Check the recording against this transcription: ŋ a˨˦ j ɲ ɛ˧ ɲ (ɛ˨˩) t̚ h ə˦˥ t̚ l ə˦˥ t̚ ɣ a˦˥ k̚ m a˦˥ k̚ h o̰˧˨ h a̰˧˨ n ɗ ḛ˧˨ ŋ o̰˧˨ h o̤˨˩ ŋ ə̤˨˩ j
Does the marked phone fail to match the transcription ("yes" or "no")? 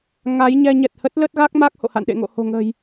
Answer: no